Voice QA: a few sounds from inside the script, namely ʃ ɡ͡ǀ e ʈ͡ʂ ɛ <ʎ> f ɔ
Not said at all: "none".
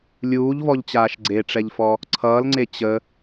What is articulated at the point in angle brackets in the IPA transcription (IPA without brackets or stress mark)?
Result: ʎ